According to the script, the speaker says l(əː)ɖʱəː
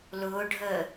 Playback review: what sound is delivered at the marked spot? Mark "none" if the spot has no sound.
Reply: ʊː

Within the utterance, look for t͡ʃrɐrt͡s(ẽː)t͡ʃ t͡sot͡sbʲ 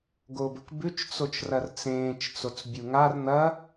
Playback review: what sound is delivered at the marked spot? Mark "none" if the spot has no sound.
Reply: ẽː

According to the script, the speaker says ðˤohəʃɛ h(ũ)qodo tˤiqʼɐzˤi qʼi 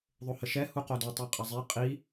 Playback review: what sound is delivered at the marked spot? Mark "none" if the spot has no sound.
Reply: u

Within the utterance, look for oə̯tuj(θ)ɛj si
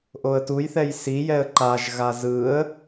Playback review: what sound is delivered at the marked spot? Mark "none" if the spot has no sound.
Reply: θ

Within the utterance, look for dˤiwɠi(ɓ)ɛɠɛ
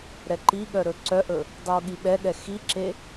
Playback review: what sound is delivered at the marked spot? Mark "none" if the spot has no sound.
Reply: ɓ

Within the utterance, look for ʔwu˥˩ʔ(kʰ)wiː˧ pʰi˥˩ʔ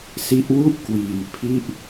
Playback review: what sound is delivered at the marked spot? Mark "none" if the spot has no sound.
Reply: k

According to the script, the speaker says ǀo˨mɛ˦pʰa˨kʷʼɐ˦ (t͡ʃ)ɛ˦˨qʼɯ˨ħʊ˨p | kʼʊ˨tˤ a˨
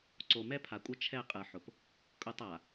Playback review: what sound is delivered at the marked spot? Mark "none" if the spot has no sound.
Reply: t͡ʃʰ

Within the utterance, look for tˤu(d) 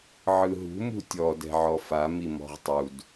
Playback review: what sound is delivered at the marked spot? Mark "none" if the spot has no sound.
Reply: d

